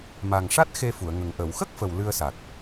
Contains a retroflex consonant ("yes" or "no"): yes